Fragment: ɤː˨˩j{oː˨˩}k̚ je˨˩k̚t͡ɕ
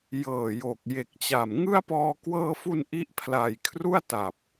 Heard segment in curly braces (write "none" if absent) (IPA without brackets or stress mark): o˨˩